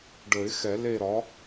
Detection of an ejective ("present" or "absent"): absent